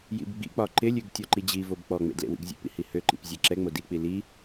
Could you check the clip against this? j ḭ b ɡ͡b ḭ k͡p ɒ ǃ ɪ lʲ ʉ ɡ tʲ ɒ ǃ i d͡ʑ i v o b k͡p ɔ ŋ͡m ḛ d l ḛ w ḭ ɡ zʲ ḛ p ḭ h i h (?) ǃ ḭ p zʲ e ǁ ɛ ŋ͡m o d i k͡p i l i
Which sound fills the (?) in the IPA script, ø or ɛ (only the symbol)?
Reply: ø